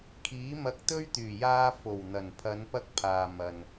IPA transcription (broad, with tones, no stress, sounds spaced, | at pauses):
kʰ iː˨˥ m ɐ˧ k̚ t̪ ɵ˥ ɥ t̪ yː˨˩ j aː˧ f o˨˩ w n̪ ɐ˨˩ n pʰ ɐ˨˧ n p ɐ˥ k̚ pʰ aː˨ m ɐ˨ n